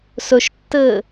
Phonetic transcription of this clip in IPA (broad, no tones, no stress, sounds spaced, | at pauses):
s ɵ ʃ tː ɘː